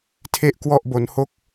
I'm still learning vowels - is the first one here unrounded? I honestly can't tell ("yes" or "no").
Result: yes